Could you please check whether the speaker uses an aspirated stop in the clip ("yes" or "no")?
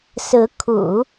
yes